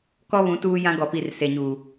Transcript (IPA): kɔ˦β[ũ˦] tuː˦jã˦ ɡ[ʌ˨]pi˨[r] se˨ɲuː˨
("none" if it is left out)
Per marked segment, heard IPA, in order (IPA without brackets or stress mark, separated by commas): ũ˨˦, ɔ˨, r